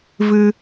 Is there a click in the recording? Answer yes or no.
no